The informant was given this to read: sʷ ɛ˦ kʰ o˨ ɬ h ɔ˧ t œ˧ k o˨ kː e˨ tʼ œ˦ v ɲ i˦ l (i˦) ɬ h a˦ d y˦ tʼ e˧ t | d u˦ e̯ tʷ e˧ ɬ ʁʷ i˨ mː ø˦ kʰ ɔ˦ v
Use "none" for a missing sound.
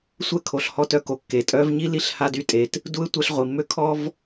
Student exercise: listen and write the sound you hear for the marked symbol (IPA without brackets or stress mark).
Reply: i˦˨